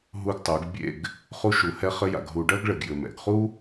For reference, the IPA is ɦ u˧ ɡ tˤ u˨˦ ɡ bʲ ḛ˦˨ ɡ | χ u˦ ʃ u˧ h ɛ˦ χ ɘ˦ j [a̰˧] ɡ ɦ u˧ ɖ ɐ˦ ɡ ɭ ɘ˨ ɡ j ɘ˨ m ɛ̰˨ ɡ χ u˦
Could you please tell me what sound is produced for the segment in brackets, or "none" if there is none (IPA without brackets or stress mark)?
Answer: a̰˧